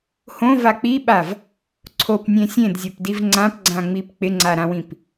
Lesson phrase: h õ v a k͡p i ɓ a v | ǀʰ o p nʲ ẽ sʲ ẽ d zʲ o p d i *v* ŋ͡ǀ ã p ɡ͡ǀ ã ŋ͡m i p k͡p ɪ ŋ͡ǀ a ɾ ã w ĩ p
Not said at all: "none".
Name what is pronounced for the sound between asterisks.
v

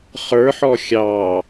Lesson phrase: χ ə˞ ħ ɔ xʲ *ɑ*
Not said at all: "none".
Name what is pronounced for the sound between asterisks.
ɑ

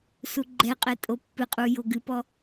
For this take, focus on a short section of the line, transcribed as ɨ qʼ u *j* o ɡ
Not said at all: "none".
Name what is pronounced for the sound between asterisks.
j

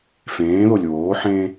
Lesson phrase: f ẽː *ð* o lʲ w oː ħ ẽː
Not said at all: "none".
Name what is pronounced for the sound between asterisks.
ð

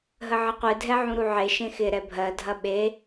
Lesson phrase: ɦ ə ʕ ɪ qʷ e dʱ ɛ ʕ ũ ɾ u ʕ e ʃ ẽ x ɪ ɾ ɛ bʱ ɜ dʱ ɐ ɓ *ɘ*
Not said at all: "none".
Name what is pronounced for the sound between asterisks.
e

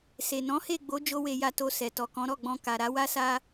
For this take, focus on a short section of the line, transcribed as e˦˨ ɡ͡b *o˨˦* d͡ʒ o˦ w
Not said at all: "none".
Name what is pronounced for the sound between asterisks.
o˨˦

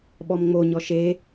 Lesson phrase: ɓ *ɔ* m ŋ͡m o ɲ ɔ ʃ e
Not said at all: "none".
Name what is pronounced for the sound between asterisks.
ɔ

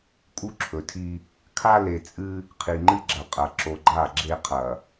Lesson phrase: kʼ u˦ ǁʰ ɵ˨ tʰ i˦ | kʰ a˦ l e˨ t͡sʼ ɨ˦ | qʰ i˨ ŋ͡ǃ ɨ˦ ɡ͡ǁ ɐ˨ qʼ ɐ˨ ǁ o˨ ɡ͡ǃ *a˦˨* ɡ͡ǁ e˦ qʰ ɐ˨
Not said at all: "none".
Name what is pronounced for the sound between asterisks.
a˦˨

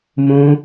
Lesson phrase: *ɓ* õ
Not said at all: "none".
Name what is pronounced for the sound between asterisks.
m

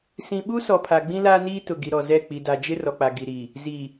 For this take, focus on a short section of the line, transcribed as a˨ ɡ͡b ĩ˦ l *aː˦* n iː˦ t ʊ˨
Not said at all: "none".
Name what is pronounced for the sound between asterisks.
aː˦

